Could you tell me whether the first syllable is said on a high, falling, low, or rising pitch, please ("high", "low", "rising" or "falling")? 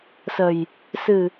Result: low